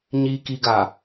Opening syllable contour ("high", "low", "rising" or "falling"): low